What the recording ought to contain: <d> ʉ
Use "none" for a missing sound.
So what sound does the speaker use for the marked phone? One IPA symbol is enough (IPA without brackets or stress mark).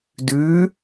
d